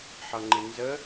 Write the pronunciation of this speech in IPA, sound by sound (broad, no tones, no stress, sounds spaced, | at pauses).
ħ ʌ ŋ͡ǃ ɪ n z ə